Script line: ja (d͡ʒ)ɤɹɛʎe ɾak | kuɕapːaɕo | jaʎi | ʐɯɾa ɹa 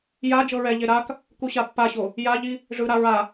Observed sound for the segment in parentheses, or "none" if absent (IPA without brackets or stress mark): d͡ʒ